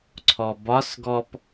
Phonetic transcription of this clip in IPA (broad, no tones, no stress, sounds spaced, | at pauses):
ǀʰ ɔ b ɒ s ɡ ɔ p